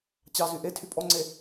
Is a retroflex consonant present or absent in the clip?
absent